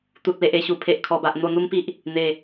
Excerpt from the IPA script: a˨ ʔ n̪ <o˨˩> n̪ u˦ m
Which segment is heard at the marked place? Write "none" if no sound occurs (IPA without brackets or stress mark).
o˧